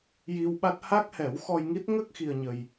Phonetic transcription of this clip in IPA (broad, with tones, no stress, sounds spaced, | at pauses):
j i˧ w ɓ a˦˥ t̚ h a˦˥ k̚ h ɛ˨˩˦ w x ɔ˧ j ŋ i˦˥ t̚ ŋ ə˦˥ k̚ x i˧ ə̯ ɲ ə˧ j